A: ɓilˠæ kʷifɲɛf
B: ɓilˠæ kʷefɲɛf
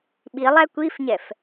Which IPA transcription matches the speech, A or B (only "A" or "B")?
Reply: A